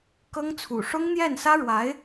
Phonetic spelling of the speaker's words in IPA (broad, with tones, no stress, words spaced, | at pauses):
kɤ˥ŋt͡sʰṵ˨˩ ʂʊ˥ŋn̪jɛ˥˩nsä˥ɻwa˧˥ɪ̯